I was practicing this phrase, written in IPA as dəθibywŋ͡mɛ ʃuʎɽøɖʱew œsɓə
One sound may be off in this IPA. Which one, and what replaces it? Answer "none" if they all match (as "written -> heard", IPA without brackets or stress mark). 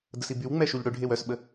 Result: θ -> s